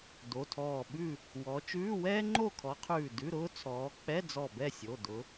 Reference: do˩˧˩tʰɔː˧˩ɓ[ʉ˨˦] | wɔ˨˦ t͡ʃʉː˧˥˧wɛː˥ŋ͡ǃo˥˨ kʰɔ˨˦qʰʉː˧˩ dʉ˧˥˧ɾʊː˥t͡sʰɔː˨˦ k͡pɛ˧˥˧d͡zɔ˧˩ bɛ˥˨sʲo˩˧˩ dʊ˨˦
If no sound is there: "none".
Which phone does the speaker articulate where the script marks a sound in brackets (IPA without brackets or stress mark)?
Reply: ʉ˥˨